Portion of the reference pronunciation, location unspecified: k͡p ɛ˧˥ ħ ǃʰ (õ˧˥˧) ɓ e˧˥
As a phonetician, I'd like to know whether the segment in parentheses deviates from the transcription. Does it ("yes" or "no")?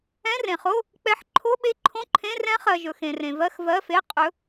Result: yes